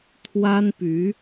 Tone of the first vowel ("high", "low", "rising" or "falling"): high